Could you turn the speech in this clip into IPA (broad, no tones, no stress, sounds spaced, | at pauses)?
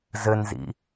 z ɘ n z ḭ